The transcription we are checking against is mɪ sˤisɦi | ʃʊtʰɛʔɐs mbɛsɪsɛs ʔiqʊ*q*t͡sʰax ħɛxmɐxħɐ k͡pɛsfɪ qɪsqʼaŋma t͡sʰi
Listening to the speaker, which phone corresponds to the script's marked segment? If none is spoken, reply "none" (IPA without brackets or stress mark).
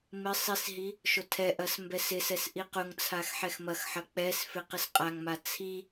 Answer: ŋ